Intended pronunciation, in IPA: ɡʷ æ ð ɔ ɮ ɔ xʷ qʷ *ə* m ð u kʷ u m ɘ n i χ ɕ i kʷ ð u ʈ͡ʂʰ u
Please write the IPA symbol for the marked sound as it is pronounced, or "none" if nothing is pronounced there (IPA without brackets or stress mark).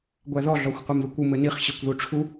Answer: æ